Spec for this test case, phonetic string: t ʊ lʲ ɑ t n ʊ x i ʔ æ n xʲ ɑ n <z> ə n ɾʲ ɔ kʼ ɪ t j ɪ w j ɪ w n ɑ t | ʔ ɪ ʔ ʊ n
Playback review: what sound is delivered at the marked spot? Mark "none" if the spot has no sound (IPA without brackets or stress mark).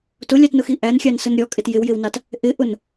s